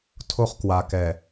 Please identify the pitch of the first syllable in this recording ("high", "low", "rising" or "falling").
high